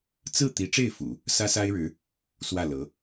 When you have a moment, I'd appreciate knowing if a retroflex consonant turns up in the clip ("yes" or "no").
yes